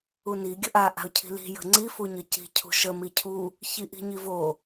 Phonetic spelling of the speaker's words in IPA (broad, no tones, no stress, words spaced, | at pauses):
uni ɡʲəʔa ʔa̤ʊ̯cʰi̤li̤ jə̤ŋ͡ǀi fuɲəci̤ cʰṳʃə micʰu | çiʔi̤ɲivo